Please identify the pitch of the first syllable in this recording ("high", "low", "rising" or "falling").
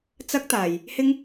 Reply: high